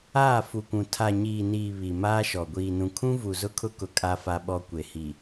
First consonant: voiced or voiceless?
voiceless